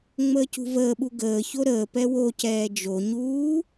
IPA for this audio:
ŋ͡m əː c ṳ v əː ɓ u ɡ əː ç o ɾ əː p ɛ w o c ɛː d͡ʒ o ɲ uː

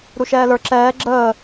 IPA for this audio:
ɾ u ʃ ɛː l ə˞ ǁ ɛː ɡ͡ǁ əː

